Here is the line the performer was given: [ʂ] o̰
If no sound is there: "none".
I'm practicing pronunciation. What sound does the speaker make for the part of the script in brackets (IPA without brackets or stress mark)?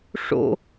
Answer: ʂ